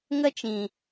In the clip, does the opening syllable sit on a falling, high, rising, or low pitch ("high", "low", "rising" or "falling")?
high